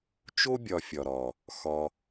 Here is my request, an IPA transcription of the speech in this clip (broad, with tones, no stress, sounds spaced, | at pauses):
t͡ʃ o˦ bʲ ɒ˧ fʲ ɒ˨ ɾ ɒ˨ | x ɒ˧